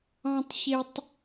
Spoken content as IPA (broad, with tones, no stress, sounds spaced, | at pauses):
ɑ̃˦ tˤ ç e˦ tˤ